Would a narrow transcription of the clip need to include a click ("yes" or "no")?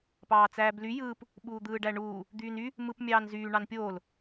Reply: no